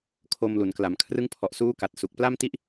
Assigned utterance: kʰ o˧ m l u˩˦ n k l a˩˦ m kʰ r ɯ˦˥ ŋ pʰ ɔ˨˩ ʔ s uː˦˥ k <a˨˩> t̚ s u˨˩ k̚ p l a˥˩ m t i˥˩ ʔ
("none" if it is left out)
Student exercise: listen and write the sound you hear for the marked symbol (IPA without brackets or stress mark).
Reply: a˨˩